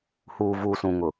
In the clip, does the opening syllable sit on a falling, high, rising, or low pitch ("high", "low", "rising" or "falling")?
low